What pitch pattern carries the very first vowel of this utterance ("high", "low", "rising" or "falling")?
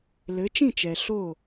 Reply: rising